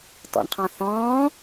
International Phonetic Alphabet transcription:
t ɔ̰ ɳ qʰ ɑ̃ θ ɔ̃ː

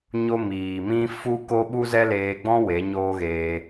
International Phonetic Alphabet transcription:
ɲ o˦ m iː˨ m ĩ˦ f u˦ k o˦ ɓ u˦ z ɛ˦ l eː˧ ɡ͡b ɔ̃˦ w e˨˦ ɲ oː˦ ɣ eː˧

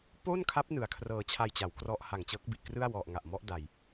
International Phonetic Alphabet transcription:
p o˥˩ n kʰ a˦˥ p̚ n ɯ˨˩ a̯ kʰ r ɤː˧ t͡ɕʰ a˧ j t͡ɕ a˩˦ w k r ɔ˦˥ ʔ h a˨˩ ŋ t͡ɕ ɤː˦˥ k̚ b i˨˩ ʔ k r ɯ˥˩ a̯ w ɔ˨˩ ʔ ŋ a˨˩ ʔ m ɔ˦˥ ʔ d a˨˩ j

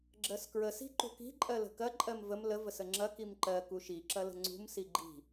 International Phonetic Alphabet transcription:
ɡ͡ǁ ɜ s k ɹ ə s i̤ ǃ ṳ k i̤ ǃʼ ɜ l ə̤ k ɐ ǃʼ ɜ m v ə m l ə v ə s ə ŋ͡ǁ ɐ k i m ǃ ɜ k u ʃ i ǁ ɐ l ə̤ ŋ͡ǀ ṳ m s i ɡ͡ǃ i̤

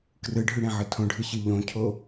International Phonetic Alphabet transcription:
k r ɯ ɖʱ y ɽ ẽ ʕ ɯ tʰ õ ɖʱ ɯ ɕ ɯ ʎ õ cʰ o

